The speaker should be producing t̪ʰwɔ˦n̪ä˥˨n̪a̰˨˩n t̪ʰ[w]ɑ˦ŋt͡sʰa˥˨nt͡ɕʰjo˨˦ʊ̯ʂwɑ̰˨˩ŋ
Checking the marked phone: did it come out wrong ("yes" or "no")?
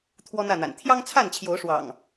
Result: yes